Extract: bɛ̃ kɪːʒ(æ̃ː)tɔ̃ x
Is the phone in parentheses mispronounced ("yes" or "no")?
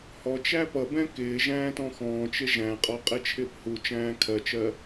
no